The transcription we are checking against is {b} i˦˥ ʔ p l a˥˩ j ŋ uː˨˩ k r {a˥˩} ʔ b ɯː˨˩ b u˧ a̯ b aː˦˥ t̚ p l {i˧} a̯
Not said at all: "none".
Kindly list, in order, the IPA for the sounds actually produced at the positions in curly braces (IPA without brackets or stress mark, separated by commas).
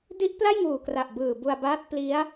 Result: d, a˨˩, i˦˥